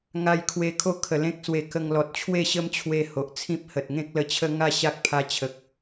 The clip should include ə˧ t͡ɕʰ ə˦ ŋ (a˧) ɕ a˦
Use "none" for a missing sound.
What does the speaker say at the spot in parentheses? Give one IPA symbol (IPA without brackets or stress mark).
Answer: a˥˧